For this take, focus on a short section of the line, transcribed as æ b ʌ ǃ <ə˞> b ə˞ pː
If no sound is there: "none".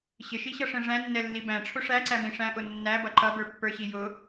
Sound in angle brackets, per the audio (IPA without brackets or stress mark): ʌ